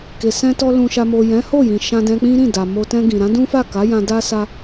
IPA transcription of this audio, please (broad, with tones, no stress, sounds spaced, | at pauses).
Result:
k e˨ s ɛ̃˧ t ɔ˧ l ũ˨ ʃ a˨ m o˨ j ɛ̃˨˦ h o˦˨ j ĩ˨ ʃ ã˧ d ɛ̃˧ k͡p ĩ˦ ɾ ĩ˦˨ d a˨ m o˧ t ɛ̃˧ ɡ ĩ˨ ɾ ã˨˦ d ũ˦ f a˦˨ k a˨˦ j ã˧ d a˦ s a˦